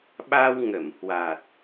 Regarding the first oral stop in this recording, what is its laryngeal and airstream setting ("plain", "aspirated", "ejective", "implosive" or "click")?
implosive